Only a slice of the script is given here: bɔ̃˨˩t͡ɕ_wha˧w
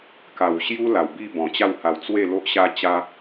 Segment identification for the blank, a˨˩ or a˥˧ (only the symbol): a˥˧